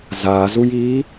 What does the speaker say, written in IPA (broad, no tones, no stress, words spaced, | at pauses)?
zazujiː